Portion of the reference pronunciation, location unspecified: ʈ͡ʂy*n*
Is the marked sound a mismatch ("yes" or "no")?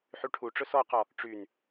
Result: no